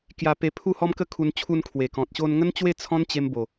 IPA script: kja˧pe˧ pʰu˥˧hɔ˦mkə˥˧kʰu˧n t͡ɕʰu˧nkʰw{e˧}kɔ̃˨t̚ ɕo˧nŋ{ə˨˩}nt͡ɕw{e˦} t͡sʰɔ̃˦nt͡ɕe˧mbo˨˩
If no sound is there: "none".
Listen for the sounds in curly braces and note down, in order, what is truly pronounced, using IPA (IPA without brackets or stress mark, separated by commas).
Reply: e˨˩, ə˦, e˥˧